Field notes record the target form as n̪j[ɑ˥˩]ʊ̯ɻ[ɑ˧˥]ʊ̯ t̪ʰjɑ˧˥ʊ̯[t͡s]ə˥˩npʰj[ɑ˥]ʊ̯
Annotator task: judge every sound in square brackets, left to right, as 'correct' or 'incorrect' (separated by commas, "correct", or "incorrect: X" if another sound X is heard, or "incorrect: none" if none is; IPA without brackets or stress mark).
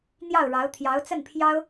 correct, correct, correct, correct